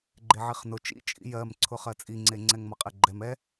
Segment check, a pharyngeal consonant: present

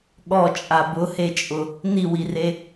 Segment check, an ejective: present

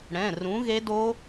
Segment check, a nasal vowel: present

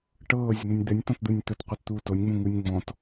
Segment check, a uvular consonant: present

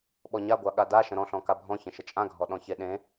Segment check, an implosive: present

